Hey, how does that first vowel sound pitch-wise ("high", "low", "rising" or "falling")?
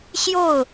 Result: falling